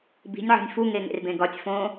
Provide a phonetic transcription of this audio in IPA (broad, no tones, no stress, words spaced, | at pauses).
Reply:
bi̤nʲʕɔ̤nʲ fuŋe ŋḛrbẽ ɡɒtʲ fõ